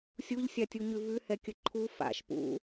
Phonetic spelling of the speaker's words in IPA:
sʲ u ʎ sʲ a tʲ u ɲ ʉ v ʉ h ɛ kʲ ə ǃʰ u f a̰ ʃ p ṵ

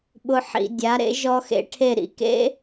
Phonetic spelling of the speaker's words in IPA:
ɓ ʊ˦˥ ħ ḭ˧ dʲ a˨˥ ɾ ḛ˨˥ ʒ ɔ˦˥ x ḛ˦˥ ʈʰ e˥˨ ɾ ḭ˥˨ k ḛ˦˥

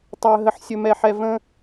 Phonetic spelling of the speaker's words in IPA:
tˤ ɵ˧ ə̯ ɦ ə˧ ħ sʲ ɵ˧ m ɛ˧ ħ ɛ˧ v ə̃˦

